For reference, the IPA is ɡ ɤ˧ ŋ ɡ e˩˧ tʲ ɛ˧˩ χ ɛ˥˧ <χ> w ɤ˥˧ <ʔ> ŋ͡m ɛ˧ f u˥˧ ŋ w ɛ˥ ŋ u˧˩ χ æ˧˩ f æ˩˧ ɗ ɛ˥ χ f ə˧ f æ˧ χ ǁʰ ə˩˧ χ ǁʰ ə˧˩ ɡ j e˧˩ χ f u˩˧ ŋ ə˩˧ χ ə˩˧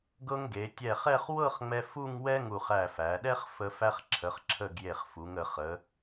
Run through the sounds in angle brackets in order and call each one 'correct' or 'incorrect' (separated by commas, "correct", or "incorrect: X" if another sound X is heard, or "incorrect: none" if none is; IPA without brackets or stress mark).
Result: correct, incorrect: χ